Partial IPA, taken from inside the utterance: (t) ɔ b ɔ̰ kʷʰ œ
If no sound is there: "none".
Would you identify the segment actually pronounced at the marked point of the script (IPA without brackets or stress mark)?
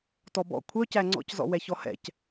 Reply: t